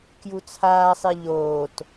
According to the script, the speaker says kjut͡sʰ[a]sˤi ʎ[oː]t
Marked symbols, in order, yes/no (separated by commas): no, yes